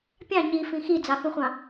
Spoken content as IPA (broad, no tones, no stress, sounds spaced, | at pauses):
pʲ ɑ̃ ɲ i f ĩ x i d͡z ɑ x ũ χʷ ɑ̃